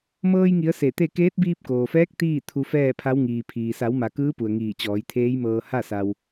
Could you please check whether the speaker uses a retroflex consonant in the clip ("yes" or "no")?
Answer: no